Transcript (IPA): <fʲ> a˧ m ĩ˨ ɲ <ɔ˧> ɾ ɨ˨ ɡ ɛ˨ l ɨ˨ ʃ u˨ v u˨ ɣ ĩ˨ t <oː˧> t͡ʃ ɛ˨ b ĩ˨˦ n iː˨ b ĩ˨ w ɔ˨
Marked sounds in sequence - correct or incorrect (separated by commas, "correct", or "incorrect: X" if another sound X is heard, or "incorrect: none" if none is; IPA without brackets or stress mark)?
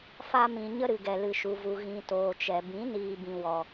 incorrect: f, incorrect: ə˧, incorrect: oː˨